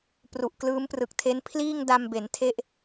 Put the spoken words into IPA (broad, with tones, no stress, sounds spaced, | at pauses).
p r u˨˩ ʔ k l ɯː˦˥ m p r ɯ˨˩ k̚ tʰ e˦˥ n pʰ l iː˥˩ ŋ d a˧ m b e˩˦ n tʰ e˦˥ ʔ